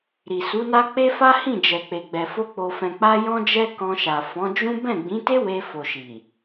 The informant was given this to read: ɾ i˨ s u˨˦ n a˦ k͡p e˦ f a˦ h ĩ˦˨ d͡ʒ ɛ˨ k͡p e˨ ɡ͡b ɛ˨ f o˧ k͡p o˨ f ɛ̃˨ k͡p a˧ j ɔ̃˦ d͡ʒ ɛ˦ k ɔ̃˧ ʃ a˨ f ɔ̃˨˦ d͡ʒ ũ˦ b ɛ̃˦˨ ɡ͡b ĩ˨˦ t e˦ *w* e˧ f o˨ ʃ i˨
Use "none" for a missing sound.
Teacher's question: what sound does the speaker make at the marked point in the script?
w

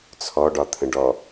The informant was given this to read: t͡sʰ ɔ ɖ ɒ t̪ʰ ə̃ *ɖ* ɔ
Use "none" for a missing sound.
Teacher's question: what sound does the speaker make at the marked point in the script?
ɖ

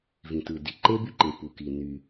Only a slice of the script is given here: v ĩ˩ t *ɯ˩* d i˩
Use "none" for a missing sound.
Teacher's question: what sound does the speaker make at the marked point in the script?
ɯ˩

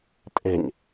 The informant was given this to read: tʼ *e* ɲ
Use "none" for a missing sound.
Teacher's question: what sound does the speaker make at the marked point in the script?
e̤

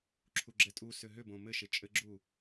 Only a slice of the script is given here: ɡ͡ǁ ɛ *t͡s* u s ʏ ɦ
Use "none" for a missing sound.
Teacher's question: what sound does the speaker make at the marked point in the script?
tʼ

